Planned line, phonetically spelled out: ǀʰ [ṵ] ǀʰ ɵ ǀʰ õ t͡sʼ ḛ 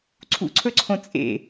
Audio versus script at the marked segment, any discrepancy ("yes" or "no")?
no